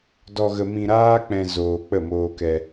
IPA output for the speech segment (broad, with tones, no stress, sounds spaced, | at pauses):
d ɔ˧ ɣ ə˧ m ĩ˧ ɾ aː˦ k͡p ɛ̃˧ z oː˧ k͡p ə˦˨ m oː˧ k ɛ˧